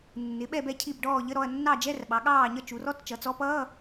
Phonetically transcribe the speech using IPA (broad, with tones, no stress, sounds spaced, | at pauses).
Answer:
nː ɪ˩˧ ɓ ɛ˦˨ b ɛ˦˨ cʰ i˦˨ b ɖ ɔː˦˨ ʎ ə˧˥˧ ɾ ɔ˦˨ ɐ̯ nː ɑ˦˨ d͡ʒ ɛ˧˥˧ r ɓ ɑ˩˧ ɠ ɑː˦˨ ɲ ʌ˦˨ t͡ʃ u˩˧ r ɔ˧˥˧ t t͡ʃ ʌ˩˧ t͡s ɔ˧˥ p ʌː˧˥˧